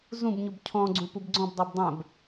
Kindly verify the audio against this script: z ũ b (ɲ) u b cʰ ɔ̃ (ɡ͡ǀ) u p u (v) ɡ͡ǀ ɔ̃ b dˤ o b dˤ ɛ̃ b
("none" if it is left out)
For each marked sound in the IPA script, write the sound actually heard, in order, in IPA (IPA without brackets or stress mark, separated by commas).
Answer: ɲ, ɡ͡ǀ, b